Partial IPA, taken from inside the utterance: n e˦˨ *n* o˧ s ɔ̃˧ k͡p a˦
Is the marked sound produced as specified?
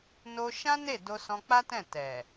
no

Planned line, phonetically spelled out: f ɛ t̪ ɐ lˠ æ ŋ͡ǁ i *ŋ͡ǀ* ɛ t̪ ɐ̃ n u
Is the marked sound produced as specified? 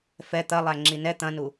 no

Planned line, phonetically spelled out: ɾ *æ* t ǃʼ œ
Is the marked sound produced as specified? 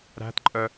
no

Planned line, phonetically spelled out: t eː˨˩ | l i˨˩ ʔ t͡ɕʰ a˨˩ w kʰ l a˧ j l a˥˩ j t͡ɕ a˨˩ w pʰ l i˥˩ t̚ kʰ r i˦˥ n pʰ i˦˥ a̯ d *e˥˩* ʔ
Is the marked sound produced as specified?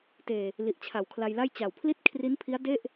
yes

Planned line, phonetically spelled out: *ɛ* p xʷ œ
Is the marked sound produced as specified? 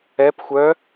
yes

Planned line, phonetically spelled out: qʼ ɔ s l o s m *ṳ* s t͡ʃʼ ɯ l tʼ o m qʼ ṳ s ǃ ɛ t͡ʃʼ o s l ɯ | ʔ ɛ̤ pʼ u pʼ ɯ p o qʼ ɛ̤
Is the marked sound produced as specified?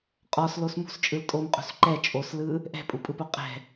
yes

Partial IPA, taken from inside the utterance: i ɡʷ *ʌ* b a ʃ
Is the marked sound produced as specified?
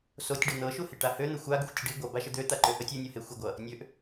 yes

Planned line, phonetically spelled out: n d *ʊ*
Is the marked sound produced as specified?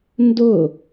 yes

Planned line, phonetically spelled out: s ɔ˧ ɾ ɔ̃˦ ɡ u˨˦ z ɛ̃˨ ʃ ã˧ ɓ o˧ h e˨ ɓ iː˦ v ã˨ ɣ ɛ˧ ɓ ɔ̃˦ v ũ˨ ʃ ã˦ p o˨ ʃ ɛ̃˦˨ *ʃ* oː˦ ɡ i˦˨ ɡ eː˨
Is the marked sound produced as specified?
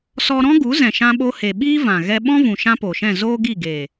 no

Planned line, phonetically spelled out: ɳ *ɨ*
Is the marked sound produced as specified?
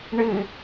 yes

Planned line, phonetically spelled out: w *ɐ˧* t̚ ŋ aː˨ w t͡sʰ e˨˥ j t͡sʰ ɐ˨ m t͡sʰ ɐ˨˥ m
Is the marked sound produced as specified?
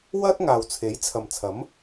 no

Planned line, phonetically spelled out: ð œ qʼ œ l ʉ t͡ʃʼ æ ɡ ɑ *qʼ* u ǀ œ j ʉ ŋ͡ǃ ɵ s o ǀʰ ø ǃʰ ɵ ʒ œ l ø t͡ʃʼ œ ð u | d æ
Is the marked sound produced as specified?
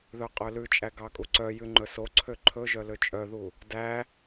no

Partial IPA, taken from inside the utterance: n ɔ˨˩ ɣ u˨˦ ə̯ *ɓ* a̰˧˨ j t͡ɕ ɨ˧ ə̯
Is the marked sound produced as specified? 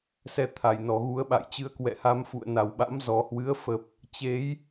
yes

